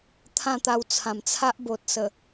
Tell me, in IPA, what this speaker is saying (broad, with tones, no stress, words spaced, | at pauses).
t̪ʰã˥˧t̪a˧wt͡sʰã˨˩mt͡sʰa˦ʔ bo˨t̚sə˨˩